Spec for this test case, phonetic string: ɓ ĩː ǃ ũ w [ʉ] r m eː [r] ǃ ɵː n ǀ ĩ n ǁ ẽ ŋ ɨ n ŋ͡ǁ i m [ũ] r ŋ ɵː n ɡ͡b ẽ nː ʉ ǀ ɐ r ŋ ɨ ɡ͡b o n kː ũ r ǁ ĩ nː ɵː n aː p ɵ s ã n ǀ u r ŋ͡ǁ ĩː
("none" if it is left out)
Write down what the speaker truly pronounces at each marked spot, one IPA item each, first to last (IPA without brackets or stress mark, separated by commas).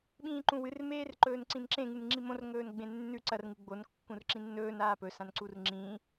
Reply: ɨ, r, õ